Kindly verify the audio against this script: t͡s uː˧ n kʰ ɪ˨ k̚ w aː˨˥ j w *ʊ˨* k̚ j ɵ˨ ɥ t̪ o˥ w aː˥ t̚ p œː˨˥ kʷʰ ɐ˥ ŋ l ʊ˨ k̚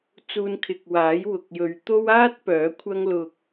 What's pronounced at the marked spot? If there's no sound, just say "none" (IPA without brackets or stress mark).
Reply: ʊ˨